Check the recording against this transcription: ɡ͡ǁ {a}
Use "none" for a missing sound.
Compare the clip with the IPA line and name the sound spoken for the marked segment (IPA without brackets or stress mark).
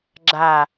a